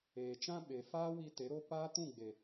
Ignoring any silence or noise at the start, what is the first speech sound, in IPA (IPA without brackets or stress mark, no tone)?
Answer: eː